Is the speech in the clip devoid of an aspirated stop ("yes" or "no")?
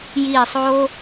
yes